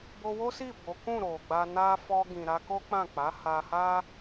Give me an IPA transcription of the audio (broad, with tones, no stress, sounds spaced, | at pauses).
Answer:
b o˧ w o˦ s i˦˨ b o˨˦ k ũ˦˨ ɾ o˨ ɡ͡b a˧ n a˦ f ɔ˧ ɡ ĩ˨ ɾ a˧ k o˦ k͡p ã˦˨ k͡p a˨˦ h a˧ h a˦